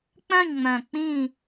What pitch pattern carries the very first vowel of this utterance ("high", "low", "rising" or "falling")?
falling